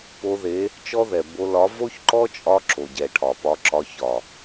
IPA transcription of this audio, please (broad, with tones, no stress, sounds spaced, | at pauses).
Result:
p o˧ ð e˨˦ | t͡ʃ ɔ˦ ð ɛ˨ b o˧ l ɒ˨˦ v o˦ ç ǃ ɔ˦ t͡ʃʼ ɒ˧ ǁ o˨ ɟ ɛ˨ ʈʰ ɒ˨ p ɒ˧ ǁ ɒ˧ ç ɒ˨